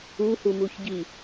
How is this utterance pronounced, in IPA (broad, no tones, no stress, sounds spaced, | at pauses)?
u h u m u ç ɟ i